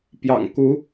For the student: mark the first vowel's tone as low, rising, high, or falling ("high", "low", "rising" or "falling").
low